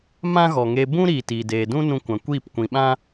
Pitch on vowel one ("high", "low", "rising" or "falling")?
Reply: high